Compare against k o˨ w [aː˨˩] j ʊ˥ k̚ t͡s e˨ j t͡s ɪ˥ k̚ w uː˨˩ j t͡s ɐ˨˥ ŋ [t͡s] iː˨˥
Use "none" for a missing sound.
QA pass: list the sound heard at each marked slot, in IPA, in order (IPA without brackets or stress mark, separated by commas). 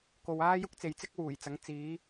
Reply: aː˥, t͡s